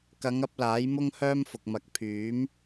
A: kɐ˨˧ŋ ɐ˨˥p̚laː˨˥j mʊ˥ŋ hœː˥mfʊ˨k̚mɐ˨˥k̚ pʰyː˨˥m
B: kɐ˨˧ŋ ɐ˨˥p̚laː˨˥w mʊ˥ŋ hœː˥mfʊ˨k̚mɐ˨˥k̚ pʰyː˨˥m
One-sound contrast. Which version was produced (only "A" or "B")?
A